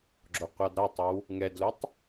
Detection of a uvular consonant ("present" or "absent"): present